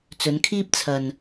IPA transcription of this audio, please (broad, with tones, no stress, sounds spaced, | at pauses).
t͡s ɵ˨˧ n kʰ iː˥ p̚ t͡sʰ ɐ˧ n